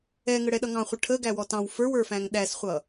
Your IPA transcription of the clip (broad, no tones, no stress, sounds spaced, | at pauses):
ɛ ŋ ə ɽ ɛ ɗ ʌ ŋ ɑ̃ χʷ ə ʈʰ ə ɡ æ w ɔ t ɑ̃ w f ə˞ w ə˞ f æ̃ ŋ ɗ æ s χʷ ʌ